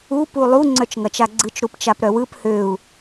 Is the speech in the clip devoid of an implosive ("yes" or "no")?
yes